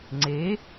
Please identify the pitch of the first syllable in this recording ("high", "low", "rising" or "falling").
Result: rising